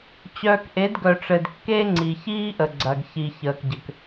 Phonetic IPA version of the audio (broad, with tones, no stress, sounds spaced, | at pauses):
t͡ɕ œː˨ k ʔ e˨˦ d ɡ œ˨ ʈ͡ʂ ɘ˨ d kː eː˦ ŋ͡ǀ i˨ ç iː˦ ʔ ə˨ ɡ͡ǀ ɐ˨ ɡ ç i˨ ç əː˨ k ɟ ɘ˨ k